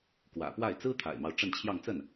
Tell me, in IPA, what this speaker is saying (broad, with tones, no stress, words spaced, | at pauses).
kwä̰˨˩pwa˥˩ɪ̯ t͡sɹ̩˥t̪ʰa̰˨˩ɪ̯mɑ˦ʊ̯ ʈ͡ʂə˥˧nt͡ɕʰjɑ˥˧ŋt͡sə˥˩n